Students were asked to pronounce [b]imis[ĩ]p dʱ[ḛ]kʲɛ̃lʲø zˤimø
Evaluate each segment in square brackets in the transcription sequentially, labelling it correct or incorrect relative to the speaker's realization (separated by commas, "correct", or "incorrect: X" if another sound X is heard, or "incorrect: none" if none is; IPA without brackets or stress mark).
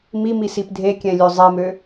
incorrect: m, incorrect: i, incorrect: e